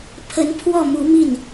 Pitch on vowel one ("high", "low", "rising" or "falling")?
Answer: rising